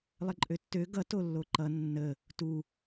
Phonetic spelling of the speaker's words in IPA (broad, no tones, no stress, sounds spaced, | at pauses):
lˠ ə ǃʼ ø tː ø ɡ ʌ t o lː o ǃ ʌ nː ə | t u